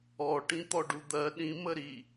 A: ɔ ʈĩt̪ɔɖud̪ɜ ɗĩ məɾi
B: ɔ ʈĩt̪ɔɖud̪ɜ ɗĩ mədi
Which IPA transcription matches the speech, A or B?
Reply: A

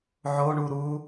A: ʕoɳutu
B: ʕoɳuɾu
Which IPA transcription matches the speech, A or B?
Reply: B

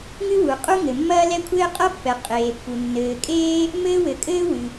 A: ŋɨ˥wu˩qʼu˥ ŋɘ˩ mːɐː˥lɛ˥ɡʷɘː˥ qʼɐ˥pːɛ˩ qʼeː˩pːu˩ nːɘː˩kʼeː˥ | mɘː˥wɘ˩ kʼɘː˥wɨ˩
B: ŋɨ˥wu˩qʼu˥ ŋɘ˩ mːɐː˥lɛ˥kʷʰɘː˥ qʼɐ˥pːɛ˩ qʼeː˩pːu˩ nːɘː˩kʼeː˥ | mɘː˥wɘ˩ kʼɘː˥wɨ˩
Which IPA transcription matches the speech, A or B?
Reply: B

